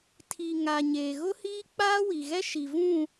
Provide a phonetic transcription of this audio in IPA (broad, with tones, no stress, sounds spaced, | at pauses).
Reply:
tʰ i˨ ŋ a˨ ɲ eː˨ ɣ ʊ˦ h iː˦ k͡p aː˦ w i˨ ɣ ɛ˦ ʃ i˨ v ũ˦˨